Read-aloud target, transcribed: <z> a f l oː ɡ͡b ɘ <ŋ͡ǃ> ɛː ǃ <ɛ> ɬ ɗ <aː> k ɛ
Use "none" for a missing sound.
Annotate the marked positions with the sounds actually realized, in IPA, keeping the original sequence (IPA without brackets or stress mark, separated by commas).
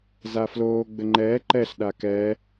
z, ŋ͡ǃ, ɛ, a